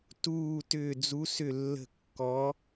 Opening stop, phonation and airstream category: plain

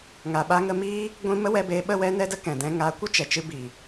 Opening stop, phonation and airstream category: implosive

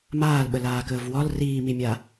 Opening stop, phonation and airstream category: implosive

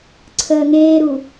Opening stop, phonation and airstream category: click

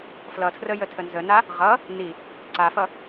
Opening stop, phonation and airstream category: aspirated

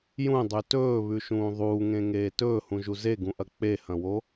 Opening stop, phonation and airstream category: plain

